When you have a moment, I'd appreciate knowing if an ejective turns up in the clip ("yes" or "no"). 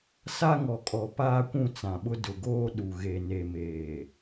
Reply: yes